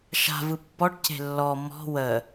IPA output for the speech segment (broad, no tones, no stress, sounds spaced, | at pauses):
ʃ a̤ v ɯ pː ɔ ʈ c e̤ lː ɔ m ɔ̤ w ə